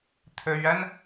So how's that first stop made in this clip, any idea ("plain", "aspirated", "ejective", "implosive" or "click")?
aspirated